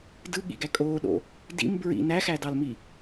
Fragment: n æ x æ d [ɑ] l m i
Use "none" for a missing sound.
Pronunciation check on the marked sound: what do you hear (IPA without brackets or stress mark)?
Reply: ɑ